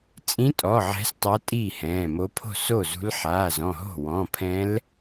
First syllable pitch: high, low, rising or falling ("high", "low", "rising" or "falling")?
rising